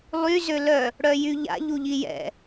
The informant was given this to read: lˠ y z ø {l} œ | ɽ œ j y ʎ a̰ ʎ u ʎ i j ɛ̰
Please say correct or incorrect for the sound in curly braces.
correct